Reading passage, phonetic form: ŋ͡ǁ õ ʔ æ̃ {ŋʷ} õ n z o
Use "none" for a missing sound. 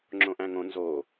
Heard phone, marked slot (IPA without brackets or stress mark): ŋ